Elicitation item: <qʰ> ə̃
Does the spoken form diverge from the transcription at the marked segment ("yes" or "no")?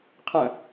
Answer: no